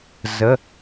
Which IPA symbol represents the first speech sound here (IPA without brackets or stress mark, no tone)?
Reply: z